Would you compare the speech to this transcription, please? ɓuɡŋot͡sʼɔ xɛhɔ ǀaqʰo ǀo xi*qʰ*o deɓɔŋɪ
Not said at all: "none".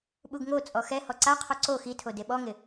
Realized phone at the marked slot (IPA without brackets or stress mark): tʰ